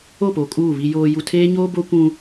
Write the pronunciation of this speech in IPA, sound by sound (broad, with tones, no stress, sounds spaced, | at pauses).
o˦˨ p o˨ kʼ uː˦˨ β i˨ j oː˨ j u˨ tʰ eː˦ ɲ oː˦ b o˦ kʷ ũ˦